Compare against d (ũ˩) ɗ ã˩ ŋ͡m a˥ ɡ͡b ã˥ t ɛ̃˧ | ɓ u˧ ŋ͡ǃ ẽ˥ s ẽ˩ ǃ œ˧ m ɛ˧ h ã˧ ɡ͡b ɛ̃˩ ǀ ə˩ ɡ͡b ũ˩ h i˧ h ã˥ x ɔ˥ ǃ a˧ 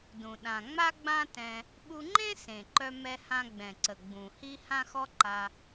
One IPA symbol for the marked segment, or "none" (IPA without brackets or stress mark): ũ˩